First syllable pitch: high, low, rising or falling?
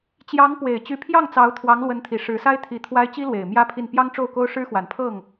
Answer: rising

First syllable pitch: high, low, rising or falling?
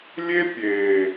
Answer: high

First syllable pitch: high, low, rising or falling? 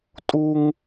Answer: high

